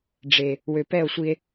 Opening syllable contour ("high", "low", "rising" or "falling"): low